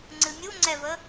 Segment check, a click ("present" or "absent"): present